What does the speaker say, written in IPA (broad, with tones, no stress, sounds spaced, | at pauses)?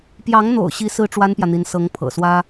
p j ɑ˧˥ ŋ n̪ o̰˨˩ ʊ̯ ɕ i˧˥ s ɹ̩˥ ʈ͡ʂ w a˥ n p j ä˨ n̪ i˧˥ n s ɤ˧˥ ŋ pʰ ɤ̰˨˩ s w ä˥